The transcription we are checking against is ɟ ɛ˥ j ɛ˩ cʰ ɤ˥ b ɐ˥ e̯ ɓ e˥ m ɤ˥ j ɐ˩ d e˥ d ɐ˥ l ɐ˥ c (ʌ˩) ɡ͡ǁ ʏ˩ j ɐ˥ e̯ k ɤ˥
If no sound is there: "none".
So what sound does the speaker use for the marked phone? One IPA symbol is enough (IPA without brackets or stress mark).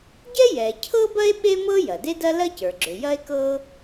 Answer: ə˞˩